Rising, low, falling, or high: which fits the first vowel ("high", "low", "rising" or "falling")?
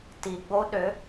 low